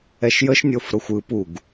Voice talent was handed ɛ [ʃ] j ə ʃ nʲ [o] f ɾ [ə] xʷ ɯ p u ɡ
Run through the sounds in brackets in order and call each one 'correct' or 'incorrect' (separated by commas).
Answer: correct, correct, incorrect